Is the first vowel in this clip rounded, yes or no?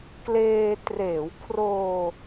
no